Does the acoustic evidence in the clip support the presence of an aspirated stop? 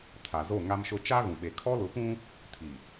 yes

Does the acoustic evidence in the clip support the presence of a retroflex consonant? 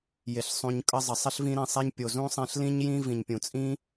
no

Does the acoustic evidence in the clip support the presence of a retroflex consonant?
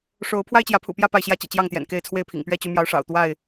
yes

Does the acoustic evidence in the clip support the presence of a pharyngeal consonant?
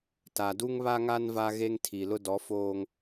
no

